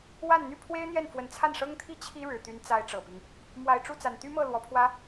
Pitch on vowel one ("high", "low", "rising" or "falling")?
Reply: falling